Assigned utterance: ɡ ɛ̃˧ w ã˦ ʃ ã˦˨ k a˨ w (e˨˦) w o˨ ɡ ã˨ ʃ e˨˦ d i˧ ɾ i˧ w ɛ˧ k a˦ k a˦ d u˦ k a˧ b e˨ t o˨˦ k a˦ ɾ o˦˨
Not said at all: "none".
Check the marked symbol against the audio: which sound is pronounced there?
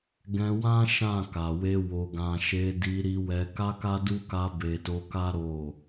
e˧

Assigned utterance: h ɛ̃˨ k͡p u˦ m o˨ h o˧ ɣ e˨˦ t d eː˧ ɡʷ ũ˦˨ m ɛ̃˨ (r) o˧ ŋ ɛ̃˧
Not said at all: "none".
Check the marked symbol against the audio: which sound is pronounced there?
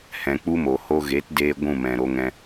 ɾ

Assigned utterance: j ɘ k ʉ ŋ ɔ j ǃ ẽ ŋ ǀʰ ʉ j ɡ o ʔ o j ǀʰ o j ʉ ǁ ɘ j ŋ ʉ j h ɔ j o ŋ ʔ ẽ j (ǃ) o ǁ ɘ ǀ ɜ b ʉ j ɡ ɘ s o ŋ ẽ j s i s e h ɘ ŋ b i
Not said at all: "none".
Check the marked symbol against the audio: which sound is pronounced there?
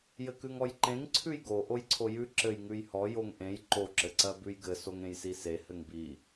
ǃ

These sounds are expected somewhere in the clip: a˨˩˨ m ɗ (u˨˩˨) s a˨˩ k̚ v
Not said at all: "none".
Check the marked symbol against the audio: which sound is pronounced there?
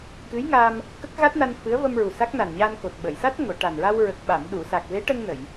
u˨˩˨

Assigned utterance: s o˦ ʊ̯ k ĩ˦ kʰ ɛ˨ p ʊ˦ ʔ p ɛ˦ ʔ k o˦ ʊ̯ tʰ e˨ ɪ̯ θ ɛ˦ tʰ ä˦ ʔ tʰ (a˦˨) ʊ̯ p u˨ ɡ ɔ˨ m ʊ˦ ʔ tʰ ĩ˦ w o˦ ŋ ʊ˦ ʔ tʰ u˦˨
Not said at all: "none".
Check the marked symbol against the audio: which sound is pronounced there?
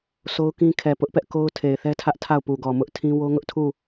a˦˨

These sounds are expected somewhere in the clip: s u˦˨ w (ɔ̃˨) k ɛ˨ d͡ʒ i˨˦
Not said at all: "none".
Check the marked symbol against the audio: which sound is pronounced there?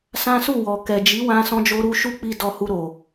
ɔ˨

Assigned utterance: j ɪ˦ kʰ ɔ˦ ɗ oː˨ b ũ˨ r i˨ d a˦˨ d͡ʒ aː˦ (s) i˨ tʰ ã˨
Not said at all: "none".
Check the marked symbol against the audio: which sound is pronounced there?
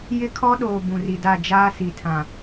s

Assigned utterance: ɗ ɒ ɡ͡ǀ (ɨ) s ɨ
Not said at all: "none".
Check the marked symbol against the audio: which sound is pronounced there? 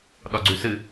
ʉ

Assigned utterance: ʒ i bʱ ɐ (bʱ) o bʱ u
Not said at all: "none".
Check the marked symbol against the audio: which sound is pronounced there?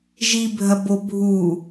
b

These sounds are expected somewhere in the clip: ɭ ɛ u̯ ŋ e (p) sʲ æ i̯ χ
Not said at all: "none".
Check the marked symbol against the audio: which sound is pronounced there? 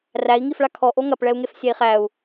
f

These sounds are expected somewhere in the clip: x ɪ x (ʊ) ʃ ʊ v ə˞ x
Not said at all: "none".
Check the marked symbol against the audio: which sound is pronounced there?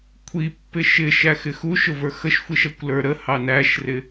u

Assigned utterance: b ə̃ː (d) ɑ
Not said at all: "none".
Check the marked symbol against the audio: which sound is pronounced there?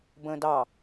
d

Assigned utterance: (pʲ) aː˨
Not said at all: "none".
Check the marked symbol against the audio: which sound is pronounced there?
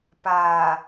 p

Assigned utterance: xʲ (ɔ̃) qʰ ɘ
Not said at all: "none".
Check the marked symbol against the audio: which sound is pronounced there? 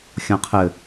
ɔ̃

